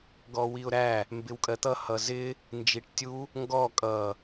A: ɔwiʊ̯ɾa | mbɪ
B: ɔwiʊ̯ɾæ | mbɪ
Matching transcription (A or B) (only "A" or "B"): B